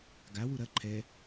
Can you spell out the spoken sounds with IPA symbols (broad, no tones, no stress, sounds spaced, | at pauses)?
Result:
ɡ a w u ɾ ɐ ǃʰ ɛ